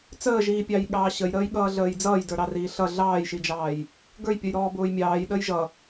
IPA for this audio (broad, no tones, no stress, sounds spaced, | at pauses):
t͡s əː ʒ iː pʲ ɑ j ɠ ɑː ɕ ə j ɾ əː j ɠ ʌː ɮ əː j d͡z ʌː j d ə˞ ɾ ɑ r iː ɬ ʌ ɮ ɑː j ʃ i d͡ʒ ɑː j | ɡ ə˞ j pʲ ʌ j ɾ ɔː b ʊː j mʲ ɑː j ɗ əː j ʒ ʌ